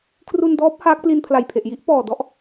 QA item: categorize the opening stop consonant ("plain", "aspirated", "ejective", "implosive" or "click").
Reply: aspirated